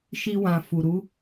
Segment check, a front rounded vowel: absent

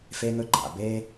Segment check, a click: present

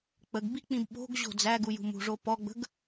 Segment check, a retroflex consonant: present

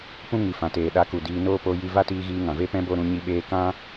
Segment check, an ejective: absent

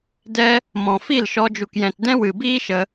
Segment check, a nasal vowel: present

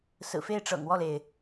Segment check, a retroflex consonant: present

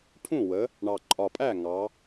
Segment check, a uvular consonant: absent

